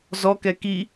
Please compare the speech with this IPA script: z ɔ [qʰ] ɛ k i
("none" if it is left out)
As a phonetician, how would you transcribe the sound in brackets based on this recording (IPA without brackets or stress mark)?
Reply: k